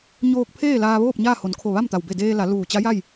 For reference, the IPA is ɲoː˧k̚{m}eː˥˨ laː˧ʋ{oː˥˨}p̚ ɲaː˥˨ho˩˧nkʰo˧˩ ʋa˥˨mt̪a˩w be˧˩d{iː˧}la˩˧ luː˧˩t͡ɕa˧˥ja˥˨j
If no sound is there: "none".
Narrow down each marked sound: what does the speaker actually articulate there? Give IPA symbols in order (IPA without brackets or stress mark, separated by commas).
pʰ, oː˥˨, eː˧